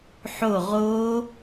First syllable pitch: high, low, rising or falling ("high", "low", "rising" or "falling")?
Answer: falling